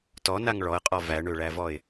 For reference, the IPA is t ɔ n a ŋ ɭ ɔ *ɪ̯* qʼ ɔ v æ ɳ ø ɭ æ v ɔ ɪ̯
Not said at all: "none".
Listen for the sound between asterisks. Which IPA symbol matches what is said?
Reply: ə̯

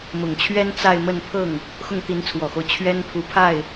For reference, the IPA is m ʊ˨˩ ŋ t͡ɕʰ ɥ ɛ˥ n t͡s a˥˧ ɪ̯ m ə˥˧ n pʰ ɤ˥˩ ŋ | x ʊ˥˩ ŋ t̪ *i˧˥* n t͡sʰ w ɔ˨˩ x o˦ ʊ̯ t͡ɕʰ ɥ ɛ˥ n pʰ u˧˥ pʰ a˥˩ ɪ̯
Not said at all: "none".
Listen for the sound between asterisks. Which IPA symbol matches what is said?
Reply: i˧˥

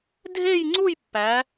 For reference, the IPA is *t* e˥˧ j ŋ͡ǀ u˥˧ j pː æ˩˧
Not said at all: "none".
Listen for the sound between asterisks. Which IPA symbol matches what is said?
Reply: dʱ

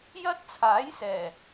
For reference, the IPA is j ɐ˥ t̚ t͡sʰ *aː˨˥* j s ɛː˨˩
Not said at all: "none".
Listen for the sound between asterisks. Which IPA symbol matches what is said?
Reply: aː˨˥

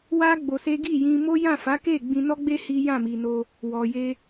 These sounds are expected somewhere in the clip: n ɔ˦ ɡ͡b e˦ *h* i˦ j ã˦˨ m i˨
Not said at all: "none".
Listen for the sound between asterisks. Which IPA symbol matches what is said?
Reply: h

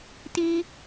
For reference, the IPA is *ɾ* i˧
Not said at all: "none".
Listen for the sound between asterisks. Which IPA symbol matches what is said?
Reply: t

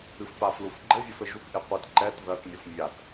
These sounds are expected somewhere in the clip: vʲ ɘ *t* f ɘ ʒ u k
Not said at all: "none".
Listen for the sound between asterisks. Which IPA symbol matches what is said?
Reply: none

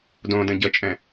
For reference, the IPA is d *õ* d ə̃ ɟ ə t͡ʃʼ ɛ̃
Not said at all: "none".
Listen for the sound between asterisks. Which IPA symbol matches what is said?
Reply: õ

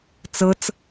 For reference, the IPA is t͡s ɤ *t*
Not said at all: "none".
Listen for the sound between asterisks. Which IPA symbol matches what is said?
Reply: t͡s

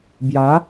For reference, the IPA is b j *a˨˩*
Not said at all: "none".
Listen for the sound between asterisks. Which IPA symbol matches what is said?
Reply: a˨˦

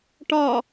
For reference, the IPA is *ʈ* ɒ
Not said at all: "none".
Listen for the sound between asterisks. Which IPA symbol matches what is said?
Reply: ʈ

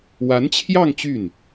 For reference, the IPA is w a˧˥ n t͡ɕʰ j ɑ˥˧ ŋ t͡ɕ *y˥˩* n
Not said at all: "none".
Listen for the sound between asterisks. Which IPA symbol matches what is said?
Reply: y˥˩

